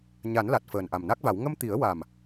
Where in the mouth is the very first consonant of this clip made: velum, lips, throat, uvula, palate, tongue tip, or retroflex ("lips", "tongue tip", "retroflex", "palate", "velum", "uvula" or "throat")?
palate